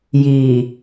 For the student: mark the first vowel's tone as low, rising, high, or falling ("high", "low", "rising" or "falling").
low